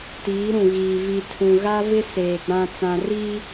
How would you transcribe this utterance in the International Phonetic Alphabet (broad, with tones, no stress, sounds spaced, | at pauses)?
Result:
t iː˨˦ ɾ ũ˨ ɣ iː˨ v i˨ tʰ ũ˨ ɣ a˦ v ɪ˦ s eː˨ ɡ͡b ã˨ t͡s ã˨ r i˦